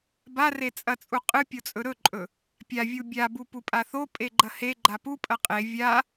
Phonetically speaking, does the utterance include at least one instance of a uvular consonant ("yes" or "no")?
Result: yes